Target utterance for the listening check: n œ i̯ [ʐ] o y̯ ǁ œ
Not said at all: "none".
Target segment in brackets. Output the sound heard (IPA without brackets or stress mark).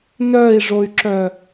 ʐ